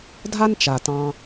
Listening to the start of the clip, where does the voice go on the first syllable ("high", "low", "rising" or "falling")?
high